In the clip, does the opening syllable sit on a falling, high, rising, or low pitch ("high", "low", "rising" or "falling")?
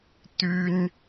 high